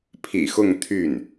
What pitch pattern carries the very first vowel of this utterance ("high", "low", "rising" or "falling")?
low